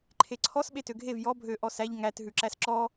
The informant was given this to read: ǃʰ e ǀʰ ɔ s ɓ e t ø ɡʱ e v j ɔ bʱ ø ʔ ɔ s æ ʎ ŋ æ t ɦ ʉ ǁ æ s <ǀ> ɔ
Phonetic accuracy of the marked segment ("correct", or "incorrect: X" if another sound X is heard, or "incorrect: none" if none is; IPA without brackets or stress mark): incorrect: ǁ